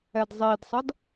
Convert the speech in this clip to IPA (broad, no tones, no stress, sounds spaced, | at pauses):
ɛ d zˤ i d sˤ ʌ d